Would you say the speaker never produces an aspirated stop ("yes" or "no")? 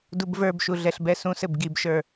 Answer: yes